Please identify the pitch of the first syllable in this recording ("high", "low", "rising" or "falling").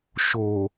low